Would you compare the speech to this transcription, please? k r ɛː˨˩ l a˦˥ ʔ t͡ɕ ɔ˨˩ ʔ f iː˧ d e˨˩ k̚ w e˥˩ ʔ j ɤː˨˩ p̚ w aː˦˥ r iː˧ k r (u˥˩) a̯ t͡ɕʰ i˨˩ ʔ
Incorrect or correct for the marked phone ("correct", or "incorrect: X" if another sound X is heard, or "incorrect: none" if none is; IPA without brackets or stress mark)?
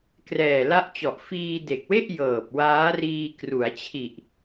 incorrect: u˩˦